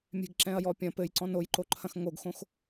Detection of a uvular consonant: absent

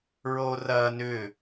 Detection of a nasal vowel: absent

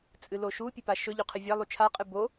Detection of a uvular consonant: present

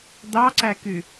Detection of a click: present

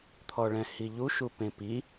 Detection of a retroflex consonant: present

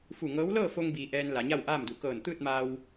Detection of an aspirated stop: absent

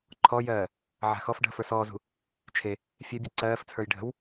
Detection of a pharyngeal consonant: present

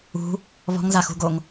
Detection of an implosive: absent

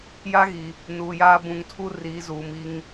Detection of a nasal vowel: present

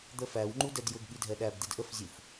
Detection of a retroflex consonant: absent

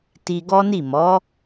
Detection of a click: absent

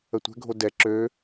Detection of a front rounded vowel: present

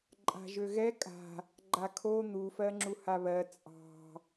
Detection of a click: present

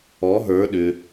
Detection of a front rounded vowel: present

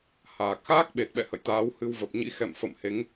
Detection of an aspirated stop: absent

